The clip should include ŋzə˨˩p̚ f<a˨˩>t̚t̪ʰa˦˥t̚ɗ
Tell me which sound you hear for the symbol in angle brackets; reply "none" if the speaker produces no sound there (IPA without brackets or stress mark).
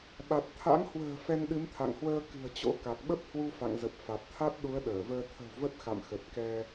a˨˩